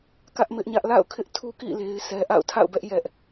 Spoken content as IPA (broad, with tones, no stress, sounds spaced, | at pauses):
k ä˦ ʔ m ɪ˦ ʔ ɲ ä˦ ʔ l a̰˦˨ ʊ̯ kʰ ɪ˦ ʔ tʰ u˦ k ḭ˦˨ l e˦ ɪ̯ s ɛ˦ ʔ a̰˦˨ ʊ̯ tʰ a̰˦˨ ʊ̯ b ɛ˦ ʔ j ɛ˦ ʔ